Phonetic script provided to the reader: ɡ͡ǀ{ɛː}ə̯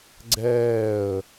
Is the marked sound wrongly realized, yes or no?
no